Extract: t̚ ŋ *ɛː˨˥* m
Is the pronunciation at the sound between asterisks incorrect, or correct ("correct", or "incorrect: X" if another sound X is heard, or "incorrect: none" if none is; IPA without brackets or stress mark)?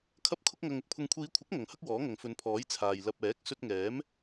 correct